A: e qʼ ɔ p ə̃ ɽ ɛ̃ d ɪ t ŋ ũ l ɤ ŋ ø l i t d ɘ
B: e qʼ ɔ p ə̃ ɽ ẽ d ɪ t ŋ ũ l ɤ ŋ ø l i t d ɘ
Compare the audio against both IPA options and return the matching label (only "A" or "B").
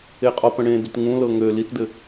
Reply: B